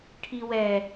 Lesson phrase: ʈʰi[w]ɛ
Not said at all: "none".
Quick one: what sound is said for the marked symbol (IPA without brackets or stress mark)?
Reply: w